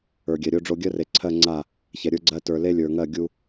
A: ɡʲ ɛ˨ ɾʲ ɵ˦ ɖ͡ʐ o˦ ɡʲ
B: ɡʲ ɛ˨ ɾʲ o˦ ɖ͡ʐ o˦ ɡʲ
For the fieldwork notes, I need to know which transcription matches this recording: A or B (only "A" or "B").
B